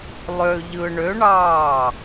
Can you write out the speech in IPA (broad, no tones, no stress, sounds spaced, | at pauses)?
lˠ ø ʎ ɯ ɳ ø ɳ ɑː